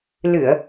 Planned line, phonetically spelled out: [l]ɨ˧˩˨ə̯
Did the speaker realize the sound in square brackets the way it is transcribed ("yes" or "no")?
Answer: yes